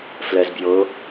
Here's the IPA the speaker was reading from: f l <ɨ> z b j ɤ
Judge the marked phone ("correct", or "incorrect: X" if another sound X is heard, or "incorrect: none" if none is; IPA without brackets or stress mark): incorrect: ɛ